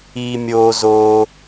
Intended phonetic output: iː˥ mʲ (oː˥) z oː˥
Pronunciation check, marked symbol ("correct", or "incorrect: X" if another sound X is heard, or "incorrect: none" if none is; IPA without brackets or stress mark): correct